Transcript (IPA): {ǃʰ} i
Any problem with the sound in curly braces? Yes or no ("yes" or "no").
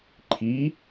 no